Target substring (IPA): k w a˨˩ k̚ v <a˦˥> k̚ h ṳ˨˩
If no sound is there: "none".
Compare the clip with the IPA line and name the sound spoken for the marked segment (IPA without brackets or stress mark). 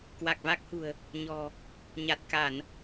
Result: a˦˥